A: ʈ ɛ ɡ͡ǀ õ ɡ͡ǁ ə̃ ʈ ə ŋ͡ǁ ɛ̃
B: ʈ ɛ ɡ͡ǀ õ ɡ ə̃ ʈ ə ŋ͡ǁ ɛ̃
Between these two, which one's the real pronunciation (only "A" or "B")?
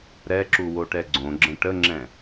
A